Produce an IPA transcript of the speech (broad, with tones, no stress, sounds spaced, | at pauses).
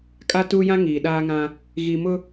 kʼ a˦ t uː˦ j ã˦ ŋ iː˨ ɗ aː˦ ŋ ã˦ | ɣ i˨ m ʊ˦